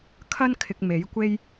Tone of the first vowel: high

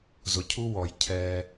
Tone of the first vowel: low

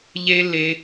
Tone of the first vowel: high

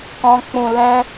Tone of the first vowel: low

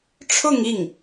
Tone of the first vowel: falling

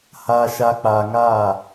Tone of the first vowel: low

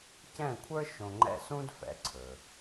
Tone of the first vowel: falling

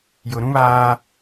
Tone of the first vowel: low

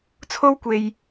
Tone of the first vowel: high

